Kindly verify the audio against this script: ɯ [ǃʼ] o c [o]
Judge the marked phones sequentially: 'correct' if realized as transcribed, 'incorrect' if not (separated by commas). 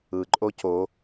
correct, correct